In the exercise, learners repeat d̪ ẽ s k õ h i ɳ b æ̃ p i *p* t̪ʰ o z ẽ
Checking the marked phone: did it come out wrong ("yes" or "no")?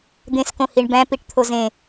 yes